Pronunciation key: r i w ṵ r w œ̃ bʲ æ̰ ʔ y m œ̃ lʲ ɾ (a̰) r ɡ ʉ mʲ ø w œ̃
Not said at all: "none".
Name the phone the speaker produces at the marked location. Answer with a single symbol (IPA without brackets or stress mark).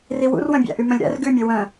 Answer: æ̰